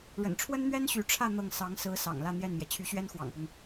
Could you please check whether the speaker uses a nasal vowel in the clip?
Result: no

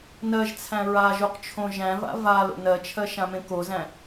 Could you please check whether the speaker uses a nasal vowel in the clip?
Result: yes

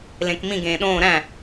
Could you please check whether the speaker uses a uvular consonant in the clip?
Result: no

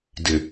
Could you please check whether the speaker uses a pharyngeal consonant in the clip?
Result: no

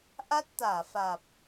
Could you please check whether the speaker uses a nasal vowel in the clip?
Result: no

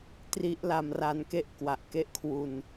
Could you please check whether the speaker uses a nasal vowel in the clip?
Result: no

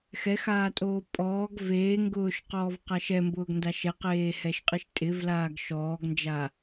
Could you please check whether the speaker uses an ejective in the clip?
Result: yes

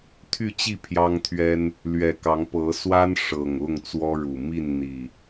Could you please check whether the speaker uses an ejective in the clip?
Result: no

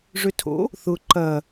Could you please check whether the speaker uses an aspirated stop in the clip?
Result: yes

